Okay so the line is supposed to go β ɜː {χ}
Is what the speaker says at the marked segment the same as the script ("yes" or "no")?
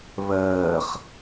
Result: yes